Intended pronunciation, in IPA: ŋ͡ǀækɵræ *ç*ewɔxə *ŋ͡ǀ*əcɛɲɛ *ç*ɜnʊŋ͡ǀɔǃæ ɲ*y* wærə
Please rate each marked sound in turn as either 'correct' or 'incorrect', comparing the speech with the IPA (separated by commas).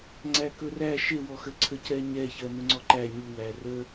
incorrect, incorrect, correct, incorrect